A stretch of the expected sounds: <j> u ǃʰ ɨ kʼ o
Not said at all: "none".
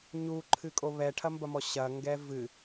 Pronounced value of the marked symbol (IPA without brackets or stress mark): ɲ